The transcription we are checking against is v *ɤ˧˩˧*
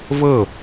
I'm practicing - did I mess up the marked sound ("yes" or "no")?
yes